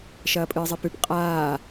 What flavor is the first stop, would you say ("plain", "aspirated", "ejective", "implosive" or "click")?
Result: ejective